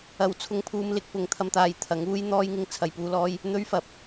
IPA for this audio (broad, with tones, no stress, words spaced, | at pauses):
ɐ˧w t͡sʰʊ˧ŋpʰuː˧mlɪ˧k̚ pʊ˨ŋt̪ʰɐ˧mt̪aː˨j t̪ʰɐ˨˥ŋuː˥jn̪ɔː˥jŋɪ˧ŋ t͡sʰɐ˨jpuː˧lɔː˧j | n̪ɵ˥ɥfɐ˨p̚